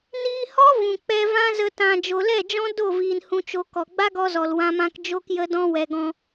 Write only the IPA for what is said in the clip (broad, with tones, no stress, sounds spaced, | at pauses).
n iː˧ h ɔ˦ v ũ˨ k͡p ɛ˧ v ã˦ z ə˧ t ã˧ d͡ʒ o˨ l ɛ˦˨ d͡ʒ ɔ̃˦ d o˦˨ v iː˨ n h ũ˨ t͡ʃ o˨ k ɔ˨ ɡ͡b a˦ ɡ ɔ˧ z ɔ˨ l w ã˧ m ã˧ k d͡ʒ o˧ k j ə˧ d ɔ̃˧ w ɛ˨ ɡ ɔ̃˧